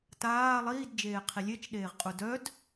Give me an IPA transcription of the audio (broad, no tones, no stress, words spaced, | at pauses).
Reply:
taː lˠiːd d͡ʒeːqʰilʲet͡ʃɗeːʁ qʼudœd